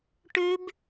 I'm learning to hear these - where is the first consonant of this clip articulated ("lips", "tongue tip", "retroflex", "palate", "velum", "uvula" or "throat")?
retroflex